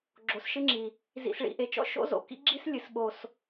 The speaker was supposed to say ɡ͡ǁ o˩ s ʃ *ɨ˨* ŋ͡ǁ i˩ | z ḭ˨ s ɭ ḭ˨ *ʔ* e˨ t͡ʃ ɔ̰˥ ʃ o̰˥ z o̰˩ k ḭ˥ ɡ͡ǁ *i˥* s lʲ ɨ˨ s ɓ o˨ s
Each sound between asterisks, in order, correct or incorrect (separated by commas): incorrect, correct, correct